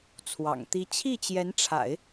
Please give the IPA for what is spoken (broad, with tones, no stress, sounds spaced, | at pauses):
t͡sʰ w ɑ̰˨˩ ŋ t̪ i˥ t͡ɕʰ i˥˩ t͡ɕ j ɛ˧˥ n ʈ͡ʂʰ a̰˨˩˦ ɪ̯